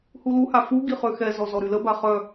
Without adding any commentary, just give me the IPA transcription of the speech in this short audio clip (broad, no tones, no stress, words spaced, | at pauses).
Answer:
huluha fu ɡiχøxɛzɔ zɔɾyləba χœ